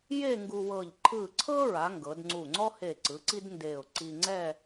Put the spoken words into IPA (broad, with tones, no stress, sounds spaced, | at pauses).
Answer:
j e˥˧ ŋ ɡ u˧ w ɤ˧˩ ʎ ǃʰ ɯ˧˩ ǀʰ ɤ˥ ɹ a˩˧ ŋ ɡ ɤ˩˧ d ŋ͡ǀ u˧˩ ŋ͡ǀ ɔ˥ h e˧˩ ǀ ɯ˩˧ ǀ i˥ d n d e˧˩ ʊ̯ ǀ i˧ ŋ͡ǀ ɛ˥˧